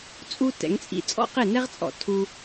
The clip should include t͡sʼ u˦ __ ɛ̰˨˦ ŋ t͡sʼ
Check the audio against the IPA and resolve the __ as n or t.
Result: t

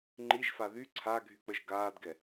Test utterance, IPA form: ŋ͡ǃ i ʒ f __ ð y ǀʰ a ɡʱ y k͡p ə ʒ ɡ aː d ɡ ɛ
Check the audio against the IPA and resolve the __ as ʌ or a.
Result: a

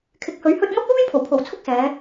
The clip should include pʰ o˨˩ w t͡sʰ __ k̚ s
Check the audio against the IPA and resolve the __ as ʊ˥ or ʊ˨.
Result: ʊ˥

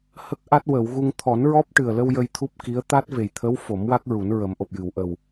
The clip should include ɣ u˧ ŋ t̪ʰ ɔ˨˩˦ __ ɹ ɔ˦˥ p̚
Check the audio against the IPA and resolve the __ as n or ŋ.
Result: n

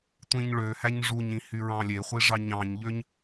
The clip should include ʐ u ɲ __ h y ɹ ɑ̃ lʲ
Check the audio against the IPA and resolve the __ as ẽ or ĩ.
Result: ĩ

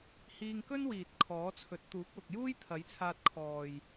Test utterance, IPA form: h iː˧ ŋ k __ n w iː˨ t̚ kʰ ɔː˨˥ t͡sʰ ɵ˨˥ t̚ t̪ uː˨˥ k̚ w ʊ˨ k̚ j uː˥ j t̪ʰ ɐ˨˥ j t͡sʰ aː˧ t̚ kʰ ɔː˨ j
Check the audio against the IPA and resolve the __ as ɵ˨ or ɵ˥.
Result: ɵ˥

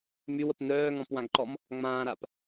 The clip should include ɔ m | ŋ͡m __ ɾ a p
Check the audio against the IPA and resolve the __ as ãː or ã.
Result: ãː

